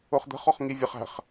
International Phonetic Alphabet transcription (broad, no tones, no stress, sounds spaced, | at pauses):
ʊ χ d̪ ə̤ χ ɔ χ ŋ i vʲ ə χ æ̤ χ